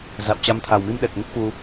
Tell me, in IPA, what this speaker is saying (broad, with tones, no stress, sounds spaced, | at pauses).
z a̰˧˨ w t͡ɕ a˧ m t̪ʰ a˨˩ w m i˧ m ɗ ɛ˨˩ k̚ ŋ ə˦˥ t̚ f u˧